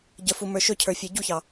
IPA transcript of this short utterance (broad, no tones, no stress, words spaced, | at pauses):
ɟəfu mə˞ʃɵcʰə˞ fʲə˞ɟuçɑ